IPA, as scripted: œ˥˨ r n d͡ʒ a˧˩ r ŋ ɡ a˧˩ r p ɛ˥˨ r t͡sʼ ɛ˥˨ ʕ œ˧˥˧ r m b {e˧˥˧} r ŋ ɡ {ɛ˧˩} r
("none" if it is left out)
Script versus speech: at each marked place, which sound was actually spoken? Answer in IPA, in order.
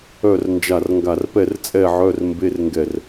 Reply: e˧˥˧, ɛ˧˩

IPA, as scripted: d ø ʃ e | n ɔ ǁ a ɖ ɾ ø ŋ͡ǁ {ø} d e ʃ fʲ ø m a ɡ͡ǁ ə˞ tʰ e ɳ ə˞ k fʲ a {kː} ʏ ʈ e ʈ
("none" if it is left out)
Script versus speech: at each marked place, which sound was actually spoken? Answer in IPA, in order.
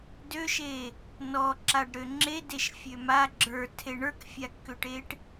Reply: e, kː

